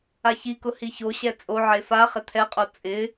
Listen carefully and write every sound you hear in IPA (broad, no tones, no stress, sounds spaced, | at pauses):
a ç i k ʊ h i ç o ɕ ɛ t͡sʼ o ʕ e f a χ ɪ t̪ʰ ɛ qʼ o t͡sʼ ɪ